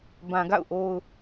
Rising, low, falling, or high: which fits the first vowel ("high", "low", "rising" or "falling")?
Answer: low